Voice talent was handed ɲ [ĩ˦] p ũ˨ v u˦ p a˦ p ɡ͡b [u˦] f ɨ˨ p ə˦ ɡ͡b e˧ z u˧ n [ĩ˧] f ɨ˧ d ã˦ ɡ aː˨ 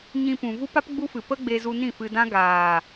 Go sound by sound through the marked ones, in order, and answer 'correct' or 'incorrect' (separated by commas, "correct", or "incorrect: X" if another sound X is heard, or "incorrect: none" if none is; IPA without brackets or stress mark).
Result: incorrect: ĩ˧, correct, incorrect: ĩ˦˨